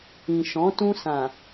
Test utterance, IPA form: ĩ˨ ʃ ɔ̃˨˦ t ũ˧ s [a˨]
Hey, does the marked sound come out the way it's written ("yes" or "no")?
no